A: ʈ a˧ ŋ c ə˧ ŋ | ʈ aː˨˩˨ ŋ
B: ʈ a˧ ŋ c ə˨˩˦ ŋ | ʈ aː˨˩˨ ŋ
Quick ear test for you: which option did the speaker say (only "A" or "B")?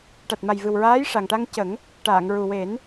B